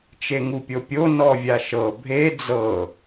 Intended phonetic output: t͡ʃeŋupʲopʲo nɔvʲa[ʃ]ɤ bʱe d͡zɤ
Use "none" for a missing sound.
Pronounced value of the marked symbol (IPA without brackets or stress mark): ʃ